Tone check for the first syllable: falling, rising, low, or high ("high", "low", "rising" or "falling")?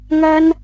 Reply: high